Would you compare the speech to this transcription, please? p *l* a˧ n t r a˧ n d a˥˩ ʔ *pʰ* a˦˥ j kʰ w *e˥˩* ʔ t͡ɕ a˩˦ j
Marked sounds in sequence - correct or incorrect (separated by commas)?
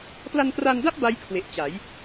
correct, incorrect, incorrect